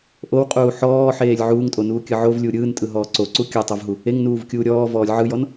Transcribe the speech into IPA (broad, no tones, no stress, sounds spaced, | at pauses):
ʔ o w qʼ uː ħ ɔː ħ eː lʲ ʕ uː ŋ tʼ o n uː kʲ ɯ ʕ o v lʲ u ɾʲ ɯː n tʼ ɯ ɦ ɔː ǀ o ǀ u kʲ ɯ tˤ o v ɦ u | e ŋ n uː v kʲ uː ɾʲ ɔː v ɔː lʲ ʕ ɯ j ɔ n